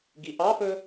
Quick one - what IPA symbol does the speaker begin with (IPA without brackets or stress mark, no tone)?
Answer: ɡ